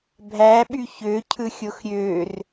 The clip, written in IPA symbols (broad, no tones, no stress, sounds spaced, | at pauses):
bʱ æ ɓ y ç ø cʰ ɯ xʲ o x ɾʲ ø r